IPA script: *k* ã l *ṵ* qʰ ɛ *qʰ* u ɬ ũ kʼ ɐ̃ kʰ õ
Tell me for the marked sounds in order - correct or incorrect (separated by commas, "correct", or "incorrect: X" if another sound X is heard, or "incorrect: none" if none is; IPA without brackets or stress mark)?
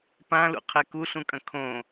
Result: incorrect: p, correct, incorrect: k